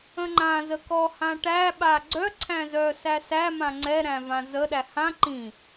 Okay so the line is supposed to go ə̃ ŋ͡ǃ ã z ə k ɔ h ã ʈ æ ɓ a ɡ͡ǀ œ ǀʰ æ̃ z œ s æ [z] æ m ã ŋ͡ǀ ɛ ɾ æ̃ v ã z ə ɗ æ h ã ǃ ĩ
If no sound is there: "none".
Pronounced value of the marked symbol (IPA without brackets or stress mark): s